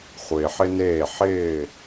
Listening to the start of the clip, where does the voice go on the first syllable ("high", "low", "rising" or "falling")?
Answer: low